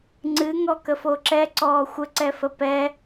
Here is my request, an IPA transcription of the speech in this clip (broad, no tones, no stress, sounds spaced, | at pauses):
ŋ͡ǀ ɨ ŋ ɔ k ə f o ǁ ɛ ǀ ɔː xʷ ə ǀ ɛ f ə p ɛ